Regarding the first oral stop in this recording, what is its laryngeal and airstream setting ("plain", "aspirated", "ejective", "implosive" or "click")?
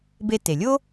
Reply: plain